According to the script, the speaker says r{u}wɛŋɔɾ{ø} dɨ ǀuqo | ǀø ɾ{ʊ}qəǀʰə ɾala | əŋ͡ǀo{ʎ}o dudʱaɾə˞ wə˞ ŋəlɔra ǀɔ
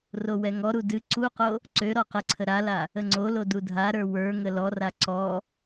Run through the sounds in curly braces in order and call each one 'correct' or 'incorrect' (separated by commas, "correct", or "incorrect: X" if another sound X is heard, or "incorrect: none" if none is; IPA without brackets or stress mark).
incorrect: o, incorrect: u, incorrect: ɔ, incorrect: l